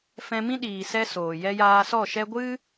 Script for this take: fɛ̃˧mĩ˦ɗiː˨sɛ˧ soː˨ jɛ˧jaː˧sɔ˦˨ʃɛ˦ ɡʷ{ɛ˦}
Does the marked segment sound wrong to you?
yes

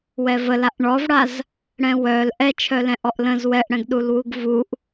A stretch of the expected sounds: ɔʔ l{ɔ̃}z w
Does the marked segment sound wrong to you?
yes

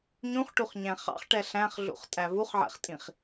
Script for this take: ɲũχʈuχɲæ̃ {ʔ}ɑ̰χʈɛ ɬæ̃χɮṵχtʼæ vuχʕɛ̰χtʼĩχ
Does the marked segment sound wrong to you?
yes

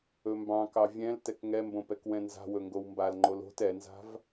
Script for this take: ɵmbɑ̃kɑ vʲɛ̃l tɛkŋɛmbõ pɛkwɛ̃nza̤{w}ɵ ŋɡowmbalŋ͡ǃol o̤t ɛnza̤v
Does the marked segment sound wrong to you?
no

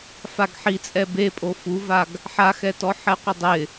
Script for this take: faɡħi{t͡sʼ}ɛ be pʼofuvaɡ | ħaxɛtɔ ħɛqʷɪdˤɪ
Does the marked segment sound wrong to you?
no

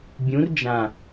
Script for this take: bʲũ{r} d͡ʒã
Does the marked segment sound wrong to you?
no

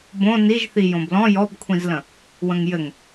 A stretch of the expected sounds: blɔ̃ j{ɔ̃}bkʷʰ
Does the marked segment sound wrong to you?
yes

